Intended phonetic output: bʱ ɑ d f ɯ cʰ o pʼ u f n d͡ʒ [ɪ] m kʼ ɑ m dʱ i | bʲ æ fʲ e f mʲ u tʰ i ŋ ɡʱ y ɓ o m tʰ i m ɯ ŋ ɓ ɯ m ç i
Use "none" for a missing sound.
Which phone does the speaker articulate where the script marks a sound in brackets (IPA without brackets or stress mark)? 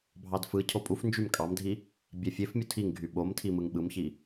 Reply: y